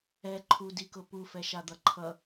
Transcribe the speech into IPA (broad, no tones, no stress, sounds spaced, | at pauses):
ɛ ǃʰ u d i k ʊ p u f ɛ ʃ a d̪ ʌ ǃʰ ʌ